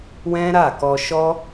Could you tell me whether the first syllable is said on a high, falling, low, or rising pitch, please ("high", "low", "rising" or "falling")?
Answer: high